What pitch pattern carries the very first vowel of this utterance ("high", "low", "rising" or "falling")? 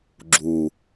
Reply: low